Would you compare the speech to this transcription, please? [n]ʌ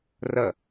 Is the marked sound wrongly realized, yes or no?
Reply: yes